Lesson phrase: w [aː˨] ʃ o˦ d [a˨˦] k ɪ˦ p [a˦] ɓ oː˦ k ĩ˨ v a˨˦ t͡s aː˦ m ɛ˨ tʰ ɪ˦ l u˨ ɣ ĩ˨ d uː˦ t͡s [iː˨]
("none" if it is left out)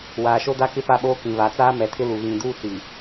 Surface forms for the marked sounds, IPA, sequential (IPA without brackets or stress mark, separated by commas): aː˨, a˦, a˦, i˨